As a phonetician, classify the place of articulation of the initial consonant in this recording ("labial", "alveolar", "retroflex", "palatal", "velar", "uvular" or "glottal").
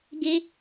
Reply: velar